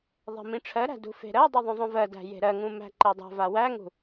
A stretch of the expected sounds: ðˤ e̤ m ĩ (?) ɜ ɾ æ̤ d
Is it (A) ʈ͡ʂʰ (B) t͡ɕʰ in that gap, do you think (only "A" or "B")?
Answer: A